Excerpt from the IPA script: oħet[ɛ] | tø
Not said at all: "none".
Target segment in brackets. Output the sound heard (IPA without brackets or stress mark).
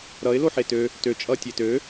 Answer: ø